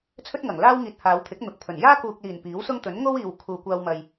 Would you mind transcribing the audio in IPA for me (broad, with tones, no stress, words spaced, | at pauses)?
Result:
t͡sʰɵ˥t̚ŋɐ˨˩ŋlaː˥wŋiː˨t̚ haː˨˧wt̪ʰɪ˨˥k̚n̪ʊ˨˥k̚pʰɵ˨˩n jaː˥kuː˨k̚liː˨˩n piː˨˥wsʊ˥ŋ t̪ɵ˨˥nŋo˥wiː˨w kʰuː˨kʷaː˧wmɐ˨j